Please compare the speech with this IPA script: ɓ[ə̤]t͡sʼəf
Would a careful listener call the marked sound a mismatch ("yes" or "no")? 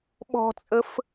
yes